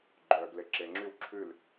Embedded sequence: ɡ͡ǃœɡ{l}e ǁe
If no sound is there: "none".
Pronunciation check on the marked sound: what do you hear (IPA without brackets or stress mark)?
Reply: l